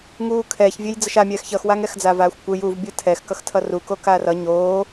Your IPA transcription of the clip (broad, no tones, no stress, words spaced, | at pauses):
ŋuːkʰɛːç vʲejd͡zʌʃamʲɛːx çʌxwaŋɛxd͡zaːv aːxʷkʷɯj uv bʲɯtʰɛxkʌxtʰʌ ruko kaːrʌ ɲoː